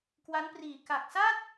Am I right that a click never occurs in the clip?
yes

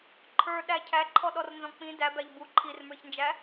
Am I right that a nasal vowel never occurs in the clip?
no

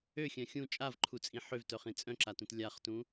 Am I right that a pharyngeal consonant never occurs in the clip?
no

